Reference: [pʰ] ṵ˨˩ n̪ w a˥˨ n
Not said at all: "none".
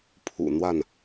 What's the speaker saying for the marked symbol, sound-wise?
pʰ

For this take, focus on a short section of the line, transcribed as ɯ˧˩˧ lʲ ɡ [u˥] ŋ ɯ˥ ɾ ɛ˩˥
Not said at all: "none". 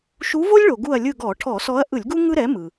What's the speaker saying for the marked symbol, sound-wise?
u˥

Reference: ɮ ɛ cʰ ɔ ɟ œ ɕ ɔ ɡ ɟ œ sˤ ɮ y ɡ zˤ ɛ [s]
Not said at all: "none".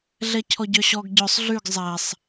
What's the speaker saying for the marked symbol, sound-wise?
sˤ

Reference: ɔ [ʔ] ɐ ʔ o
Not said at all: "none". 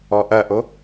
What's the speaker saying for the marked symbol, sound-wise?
ʔ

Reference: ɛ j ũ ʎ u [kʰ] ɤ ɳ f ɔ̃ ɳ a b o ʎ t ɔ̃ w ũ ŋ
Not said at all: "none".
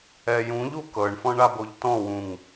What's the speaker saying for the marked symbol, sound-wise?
k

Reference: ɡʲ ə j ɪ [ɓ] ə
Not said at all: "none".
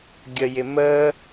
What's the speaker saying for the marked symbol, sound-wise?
m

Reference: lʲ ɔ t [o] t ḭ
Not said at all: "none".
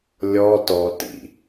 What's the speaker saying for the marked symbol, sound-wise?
ɔ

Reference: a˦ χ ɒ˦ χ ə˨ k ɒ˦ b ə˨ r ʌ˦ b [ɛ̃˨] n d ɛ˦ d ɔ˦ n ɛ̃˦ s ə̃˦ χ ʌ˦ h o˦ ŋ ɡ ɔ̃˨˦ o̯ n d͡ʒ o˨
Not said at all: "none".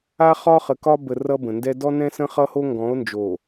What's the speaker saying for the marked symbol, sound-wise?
ə̃˨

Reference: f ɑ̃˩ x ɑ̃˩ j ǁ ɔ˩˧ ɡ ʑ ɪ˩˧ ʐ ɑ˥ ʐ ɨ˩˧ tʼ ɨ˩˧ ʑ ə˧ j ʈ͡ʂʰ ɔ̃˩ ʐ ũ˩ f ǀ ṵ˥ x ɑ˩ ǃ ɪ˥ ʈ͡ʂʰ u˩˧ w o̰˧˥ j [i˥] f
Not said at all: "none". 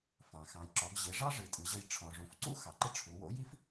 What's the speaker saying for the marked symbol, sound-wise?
i˥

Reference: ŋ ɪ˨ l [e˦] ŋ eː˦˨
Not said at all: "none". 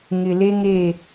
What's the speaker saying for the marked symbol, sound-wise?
e˦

